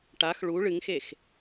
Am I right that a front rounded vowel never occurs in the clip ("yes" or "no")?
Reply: yes